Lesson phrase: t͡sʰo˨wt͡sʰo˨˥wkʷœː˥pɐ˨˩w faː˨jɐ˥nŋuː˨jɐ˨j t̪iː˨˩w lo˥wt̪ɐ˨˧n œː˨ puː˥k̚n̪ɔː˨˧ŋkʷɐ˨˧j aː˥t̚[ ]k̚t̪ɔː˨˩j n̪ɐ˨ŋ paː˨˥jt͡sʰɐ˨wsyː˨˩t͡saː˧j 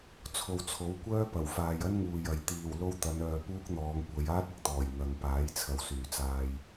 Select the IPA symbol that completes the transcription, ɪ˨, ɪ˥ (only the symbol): ɪ˨